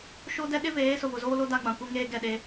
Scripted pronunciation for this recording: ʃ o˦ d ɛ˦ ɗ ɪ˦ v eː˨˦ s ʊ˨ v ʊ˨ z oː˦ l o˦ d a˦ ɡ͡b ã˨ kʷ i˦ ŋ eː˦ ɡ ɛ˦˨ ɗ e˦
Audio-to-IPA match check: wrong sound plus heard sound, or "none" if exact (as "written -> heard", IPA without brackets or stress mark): none